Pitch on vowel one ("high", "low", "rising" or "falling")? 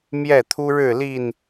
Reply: falling